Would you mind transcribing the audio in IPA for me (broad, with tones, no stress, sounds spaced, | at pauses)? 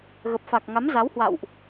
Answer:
ɣ ə˨˩ p̚ f a˨˩ k̚ ŋ a˨˦ m z a˨˦ w h w a̰˧˨ w ʔ